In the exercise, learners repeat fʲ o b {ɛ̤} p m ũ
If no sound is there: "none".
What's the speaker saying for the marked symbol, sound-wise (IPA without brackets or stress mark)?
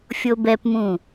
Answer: ɛ